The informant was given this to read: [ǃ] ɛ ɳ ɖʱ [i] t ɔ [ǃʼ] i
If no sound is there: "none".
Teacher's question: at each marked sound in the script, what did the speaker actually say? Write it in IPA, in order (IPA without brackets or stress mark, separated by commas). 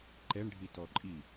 ǃ, i, ǃʼ